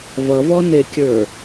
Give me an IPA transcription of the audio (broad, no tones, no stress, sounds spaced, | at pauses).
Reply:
v ʌ v ɔ n e kʲ ə˞